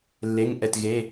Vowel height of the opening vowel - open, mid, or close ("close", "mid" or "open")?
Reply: mid